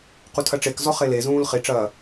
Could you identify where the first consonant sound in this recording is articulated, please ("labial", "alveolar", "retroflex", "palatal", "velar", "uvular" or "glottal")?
uvular